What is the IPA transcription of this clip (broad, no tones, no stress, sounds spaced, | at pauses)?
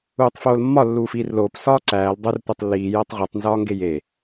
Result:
uː tˤ f oː l mː ɒ lː uː f iː r l oː p s ɒː ǀ æː l dˤ o r tʷ e tˤ lː iː j æ tˤ ʁʷ e tˤ n z ɒː ŋ ɡ e j e